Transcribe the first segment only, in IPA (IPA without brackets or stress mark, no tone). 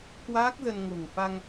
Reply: k